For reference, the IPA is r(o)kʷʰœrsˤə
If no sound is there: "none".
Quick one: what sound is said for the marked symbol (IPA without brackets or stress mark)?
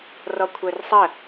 ɔ